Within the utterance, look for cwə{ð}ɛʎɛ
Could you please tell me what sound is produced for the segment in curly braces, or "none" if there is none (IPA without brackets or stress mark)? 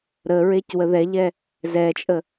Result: ð